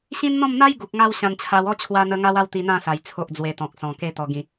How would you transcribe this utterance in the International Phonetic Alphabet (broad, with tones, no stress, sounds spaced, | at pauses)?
ɕ ĩ˦ n n̪ ɔ̃˥˧ m n̪ a˦ j ɡ u˨ k̚ ŋ a˧ w ɕ ã˧ n t͡ɕʰ a˧ w ɔ˥˧ t͡ɕʰ w a˧ n̪ ə˧ ŋ a˦ w a˥˧ w t̪ i˧ n̪ ã˥˧ s a˨˩ j t͡sʰ o˨ ʔ d͡z w e˨˩ t̪ ɔ̃˨ k̚ s ɔ̃˨˩ k e˧ t̪ ɔ˨˩ ɡ ĩ˨˩